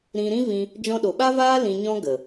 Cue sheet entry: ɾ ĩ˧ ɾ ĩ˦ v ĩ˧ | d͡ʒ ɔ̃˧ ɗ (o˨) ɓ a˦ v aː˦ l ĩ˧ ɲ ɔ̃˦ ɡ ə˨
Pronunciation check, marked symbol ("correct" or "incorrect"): correct